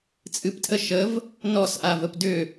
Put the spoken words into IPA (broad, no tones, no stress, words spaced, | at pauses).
t͡sʼɨptʰə ʃəv | nɔsʔavəp dʏ